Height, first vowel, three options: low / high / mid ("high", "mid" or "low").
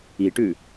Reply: high